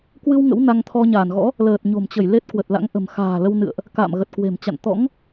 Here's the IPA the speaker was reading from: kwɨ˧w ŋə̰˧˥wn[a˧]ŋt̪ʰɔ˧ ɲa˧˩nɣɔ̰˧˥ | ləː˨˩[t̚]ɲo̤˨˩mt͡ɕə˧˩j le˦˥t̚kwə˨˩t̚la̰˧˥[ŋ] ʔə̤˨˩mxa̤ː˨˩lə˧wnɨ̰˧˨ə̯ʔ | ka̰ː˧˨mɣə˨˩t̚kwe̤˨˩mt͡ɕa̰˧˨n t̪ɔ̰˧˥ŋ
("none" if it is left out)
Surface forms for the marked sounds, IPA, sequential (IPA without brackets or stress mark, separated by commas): a˧, t̚, ŋ